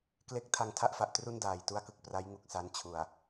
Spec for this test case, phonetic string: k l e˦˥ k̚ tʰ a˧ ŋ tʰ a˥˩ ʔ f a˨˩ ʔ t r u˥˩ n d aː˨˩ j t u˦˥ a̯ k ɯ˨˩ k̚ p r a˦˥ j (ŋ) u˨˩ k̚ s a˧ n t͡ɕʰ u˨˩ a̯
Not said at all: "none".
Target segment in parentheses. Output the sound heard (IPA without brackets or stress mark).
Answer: ŋ